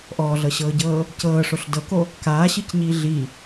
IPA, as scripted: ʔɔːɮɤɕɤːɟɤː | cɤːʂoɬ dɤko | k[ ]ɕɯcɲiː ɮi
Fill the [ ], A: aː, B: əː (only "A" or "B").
A